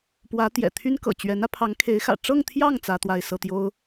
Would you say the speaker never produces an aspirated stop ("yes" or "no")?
no